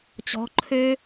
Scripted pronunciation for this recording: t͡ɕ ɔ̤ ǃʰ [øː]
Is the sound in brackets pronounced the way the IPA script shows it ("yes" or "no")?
yes